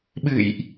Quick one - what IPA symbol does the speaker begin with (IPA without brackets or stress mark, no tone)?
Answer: ɓ